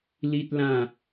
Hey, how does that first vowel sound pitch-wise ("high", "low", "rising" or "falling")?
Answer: high